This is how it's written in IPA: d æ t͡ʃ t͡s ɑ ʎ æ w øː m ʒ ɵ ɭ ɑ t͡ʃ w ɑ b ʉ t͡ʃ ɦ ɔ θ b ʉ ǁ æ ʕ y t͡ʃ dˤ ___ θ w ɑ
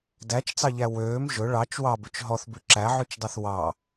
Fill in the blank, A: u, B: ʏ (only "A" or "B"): A